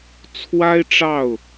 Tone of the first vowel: high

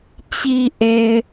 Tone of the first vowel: low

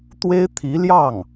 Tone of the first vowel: high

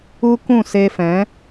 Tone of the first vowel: high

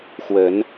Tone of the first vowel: rising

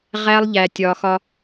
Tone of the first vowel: high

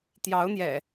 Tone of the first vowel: rising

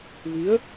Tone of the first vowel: rising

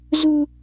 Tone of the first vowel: low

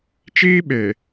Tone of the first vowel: high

